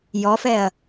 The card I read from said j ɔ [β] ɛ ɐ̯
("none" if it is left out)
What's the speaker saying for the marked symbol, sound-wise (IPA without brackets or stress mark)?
f